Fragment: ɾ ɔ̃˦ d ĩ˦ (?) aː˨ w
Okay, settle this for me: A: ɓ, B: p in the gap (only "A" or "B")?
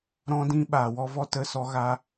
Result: A